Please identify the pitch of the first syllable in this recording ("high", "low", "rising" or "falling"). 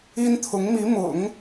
high